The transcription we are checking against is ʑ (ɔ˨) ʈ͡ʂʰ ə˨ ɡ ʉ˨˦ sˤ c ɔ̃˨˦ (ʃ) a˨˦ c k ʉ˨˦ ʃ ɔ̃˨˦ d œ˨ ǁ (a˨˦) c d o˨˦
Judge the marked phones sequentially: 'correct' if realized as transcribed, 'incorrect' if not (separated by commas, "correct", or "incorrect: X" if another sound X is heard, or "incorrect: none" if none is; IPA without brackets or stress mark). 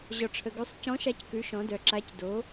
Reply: correct, correct, correct